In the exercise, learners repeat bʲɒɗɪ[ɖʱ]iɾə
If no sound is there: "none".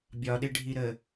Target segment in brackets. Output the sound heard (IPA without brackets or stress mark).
ɖʱ